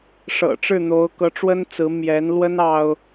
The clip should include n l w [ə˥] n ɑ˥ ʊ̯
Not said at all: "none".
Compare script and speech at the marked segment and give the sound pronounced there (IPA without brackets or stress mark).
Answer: ə˥